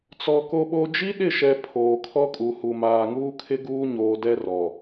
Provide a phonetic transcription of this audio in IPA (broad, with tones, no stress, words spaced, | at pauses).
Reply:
t͡sɔ˨ ko˨ɓo˨d͡ʒi˦ ɗɪ˦˨ʃɛ˨ pʰoː˨kʰɔ˦kʼu˨ hu˨maː˨ŋuː˦kʰɪ˦ ɡuː˦ɲoː˨dɛ˦ rɔ˨